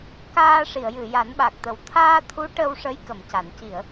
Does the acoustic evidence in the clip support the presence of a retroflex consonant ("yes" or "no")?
yes